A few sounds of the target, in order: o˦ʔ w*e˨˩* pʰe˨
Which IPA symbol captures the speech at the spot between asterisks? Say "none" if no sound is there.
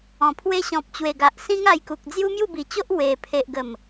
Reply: e˨˩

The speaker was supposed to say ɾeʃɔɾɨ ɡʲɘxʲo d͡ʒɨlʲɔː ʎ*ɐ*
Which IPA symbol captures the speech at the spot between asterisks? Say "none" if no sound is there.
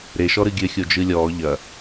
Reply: ɐ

